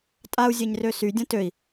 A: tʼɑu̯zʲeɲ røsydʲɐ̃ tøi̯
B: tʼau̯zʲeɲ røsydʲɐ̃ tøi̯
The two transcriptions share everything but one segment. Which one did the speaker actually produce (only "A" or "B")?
B